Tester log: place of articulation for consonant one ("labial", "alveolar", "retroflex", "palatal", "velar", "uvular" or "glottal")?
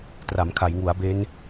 alveolar